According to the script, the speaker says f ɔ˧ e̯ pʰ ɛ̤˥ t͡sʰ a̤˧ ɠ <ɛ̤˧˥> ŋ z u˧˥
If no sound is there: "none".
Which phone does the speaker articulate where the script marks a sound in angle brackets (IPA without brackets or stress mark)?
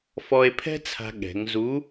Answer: ɛ̤˩˧